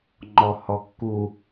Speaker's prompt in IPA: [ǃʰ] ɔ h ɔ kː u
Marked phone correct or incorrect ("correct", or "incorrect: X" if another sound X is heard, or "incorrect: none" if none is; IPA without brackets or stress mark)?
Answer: incorrect: ŋ͡ǃ